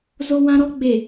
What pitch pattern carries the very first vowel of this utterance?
high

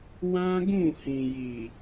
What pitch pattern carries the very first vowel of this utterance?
high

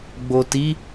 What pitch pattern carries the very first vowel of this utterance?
low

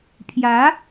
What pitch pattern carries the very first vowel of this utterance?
rising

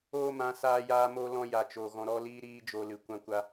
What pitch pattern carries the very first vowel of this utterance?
high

